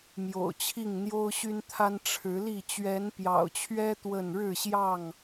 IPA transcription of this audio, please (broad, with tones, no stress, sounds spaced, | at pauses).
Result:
m j o̰˨˩ ʊ̯ t͡ɕʰ i˥˨ ŋ n̪ j o˦ ʊ̯ ɕ y˦ n t̪ʰ a˦ n ʈ͡ʂʰ ɻ̩˨˦ l i˥˨ t͡ɕ ɥ ɛ˨˦ n p j ɑ̰˨˩ ʊ̯ t͡ɕʰ ɥ ɛ˦ t̪ w ə˥˨ n ɻ ɻ̩˥˨ ɕ j ɑ˥˨ ŋ